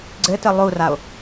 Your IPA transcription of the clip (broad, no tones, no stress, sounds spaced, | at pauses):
ɡ͡ǀ ɘ t ɘ lˠ u r a o̯